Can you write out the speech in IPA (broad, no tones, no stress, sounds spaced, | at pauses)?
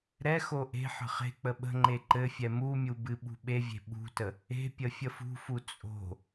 ɾ ɛ x o ʔ e̤ ħ ə̤ χ e̤ k͡p ə ɓ ə̤ ŋ͡ǃ e ǃ ɘ fʲ ɛ m u mʲ u b ɨ ɓ ṳ ɓ e vʲ e̤ ɓ ṳ t ə | e̤ pʲ ə fʲ ə f ṳ f u t͡sʼ o̤